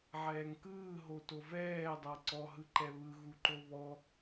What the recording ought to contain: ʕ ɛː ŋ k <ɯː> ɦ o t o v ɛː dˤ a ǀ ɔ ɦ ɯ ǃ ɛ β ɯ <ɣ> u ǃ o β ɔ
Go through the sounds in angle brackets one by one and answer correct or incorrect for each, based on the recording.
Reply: correct, correct

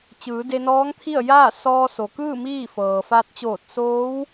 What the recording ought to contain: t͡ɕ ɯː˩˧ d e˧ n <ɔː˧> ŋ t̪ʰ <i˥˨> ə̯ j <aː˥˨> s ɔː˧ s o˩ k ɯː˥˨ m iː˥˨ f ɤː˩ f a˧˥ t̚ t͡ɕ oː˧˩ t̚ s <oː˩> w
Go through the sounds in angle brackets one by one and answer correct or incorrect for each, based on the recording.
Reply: incorrect, correct, correct, incorrect

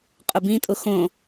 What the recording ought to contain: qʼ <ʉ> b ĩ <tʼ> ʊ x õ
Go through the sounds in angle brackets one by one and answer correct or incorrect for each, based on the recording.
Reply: incorrect, correct

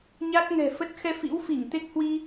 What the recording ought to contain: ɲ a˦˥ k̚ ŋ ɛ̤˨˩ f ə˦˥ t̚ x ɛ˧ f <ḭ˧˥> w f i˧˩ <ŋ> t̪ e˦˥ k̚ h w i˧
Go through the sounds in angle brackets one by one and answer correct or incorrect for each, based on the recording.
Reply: correct, correct

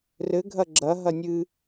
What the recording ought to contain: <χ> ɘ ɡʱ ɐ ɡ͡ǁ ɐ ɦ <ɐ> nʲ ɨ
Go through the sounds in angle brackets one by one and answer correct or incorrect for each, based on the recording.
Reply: incorrect, correct

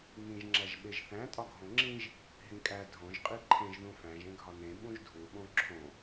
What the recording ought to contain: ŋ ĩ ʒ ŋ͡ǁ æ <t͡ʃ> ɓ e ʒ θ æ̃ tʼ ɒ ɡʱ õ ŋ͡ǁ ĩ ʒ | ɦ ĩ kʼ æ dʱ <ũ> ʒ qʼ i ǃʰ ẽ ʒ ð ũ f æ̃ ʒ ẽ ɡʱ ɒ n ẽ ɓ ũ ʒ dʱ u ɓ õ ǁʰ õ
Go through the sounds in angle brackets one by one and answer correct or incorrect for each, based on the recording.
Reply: incorrect, incorrect

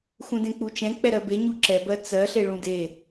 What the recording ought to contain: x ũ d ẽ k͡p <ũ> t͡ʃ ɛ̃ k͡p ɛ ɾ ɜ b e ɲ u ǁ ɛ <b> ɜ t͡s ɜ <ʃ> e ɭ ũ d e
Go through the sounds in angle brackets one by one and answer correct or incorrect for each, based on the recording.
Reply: incorrect, correct, incorrect

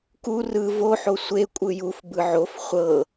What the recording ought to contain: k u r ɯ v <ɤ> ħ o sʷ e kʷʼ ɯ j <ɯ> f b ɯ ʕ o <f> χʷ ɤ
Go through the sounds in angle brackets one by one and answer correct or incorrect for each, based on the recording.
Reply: incorrect, incorrect, correct

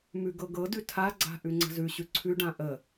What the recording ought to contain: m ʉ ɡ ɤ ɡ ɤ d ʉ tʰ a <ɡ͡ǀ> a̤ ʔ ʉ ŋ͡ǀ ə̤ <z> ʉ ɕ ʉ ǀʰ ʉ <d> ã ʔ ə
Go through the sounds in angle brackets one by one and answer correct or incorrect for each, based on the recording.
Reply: correct, correct, incorrect

